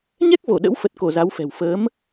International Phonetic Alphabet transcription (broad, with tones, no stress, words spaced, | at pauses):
ɲɛ˦˥k̚vo˧˩ ɗə̰˧˥w fə˨˩t̚ko˧˩ za˨˦wfɛ̤˨˩w fəː˨˦m